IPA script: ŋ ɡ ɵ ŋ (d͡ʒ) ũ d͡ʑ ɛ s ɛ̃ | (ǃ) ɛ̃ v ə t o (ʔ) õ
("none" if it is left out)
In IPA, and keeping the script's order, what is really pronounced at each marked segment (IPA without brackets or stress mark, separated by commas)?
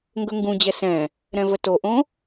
ɡ, ɾ, ʔ